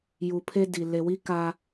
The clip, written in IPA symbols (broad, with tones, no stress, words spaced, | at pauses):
ju˨pʰe˦di˨ le˨wi˦ ka˦